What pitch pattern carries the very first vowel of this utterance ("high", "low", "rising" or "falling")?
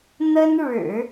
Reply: high